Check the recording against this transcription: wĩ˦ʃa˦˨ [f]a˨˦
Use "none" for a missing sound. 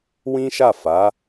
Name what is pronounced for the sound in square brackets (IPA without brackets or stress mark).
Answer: f